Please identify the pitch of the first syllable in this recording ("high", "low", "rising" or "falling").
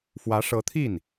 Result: rising